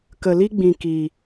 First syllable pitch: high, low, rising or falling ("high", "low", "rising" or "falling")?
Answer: low